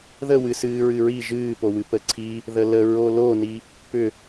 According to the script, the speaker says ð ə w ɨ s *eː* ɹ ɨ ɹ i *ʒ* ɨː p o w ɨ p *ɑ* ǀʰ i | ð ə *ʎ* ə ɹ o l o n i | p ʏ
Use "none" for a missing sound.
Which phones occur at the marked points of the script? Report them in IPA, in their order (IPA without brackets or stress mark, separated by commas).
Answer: ɨː, ʒ, ə, l